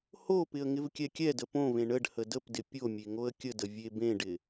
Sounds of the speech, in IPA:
h o p ɪ ə̯ ŋ ɪ v kʲ ɛ kʲ ɛ d ə p õ v ẽ ɳ ə ɖ h ə d ə p d ɪ pʲ o mʲ e ŋ o ə̯ kʲ ə d ə vʲ e b ẽ ɖ ɪ

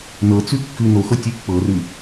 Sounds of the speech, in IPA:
n ɤ t͡s ʉ kː ʉ n o x ɤ tʲ ʉ pː ɤ r ʉ

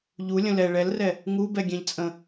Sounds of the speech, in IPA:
ʎ u lʲ ə̃ l ɛ ɭ ɛ l r ɛ | ŋ u b ɛ ɡʲ ɛ̃ ʎ t͡sʼ ə̃

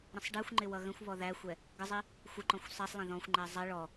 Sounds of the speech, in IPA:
ɾ ə̃ sˤ ɖ ɛ xʷ ŋ͡ǃ ɪ w ʌ ɣ ə̃ xʷ β ɔ ð æ xʷ ɛ | ɡ ə zˤ i | xʷ ə ǃ ɔ̃ xʷ sˤ ɛ sˤ lˠ ɛ̃ ð ɔ̃ xʷ ŋ͡ǃ ɛ zˤ ɛ ɭ ɔ

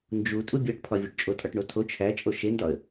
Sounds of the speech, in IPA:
n d͡ʒ u tʼ u bʲ ɒ ʈ pʰ ɒ vʲ o ʈ t͡ʃʼ o tʼ ɒ ʈ ɳ o tʰ o t͡ʃʰ æ t͡ʃʼ o ʃ e n d ɒ ə̯

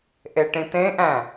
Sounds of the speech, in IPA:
ʔ e ʈ ĩ t ẽ ʔ æ̃

